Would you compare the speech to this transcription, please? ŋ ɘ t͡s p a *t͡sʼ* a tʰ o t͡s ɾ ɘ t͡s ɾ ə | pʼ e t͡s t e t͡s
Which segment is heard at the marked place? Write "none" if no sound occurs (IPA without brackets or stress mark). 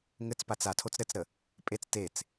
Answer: t͡s